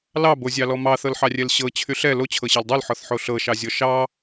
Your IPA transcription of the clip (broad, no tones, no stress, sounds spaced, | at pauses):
l ɑ b o zʲ ɑ l ɔ m ɑ θ ɤ l ħ ɑ rʲ ɛ l ɕ ɤ t͡ɕʰ y ɬ ɛ l o t͡ɕʰ ɤ ɕ ɑ l dˤ o l ħ ɔ θ ħ o ɬ ɤ ʃ ɑ zʲ ɔ ʃ ɑ